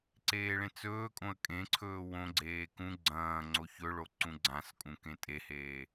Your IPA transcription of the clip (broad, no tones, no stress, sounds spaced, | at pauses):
ǀ eː ɭ ẽ t͡s ɵː kʼ õ ə̯ kʼ ẽ ǀʰ ɵː w õ ɡ͡ǀ eː k ũ ɡ͡ǀ ɐ̃ː ŋ͡ǀ o ç ɵ ɭ o ǀ ũ ɡ͡ǀ ã s kʼ ũ k ẽ tʼ e h eː